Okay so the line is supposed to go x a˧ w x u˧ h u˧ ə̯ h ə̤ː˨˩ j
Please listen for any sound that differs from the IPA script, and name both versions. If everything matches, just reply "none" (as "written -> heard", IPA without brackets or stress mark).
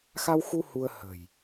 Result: none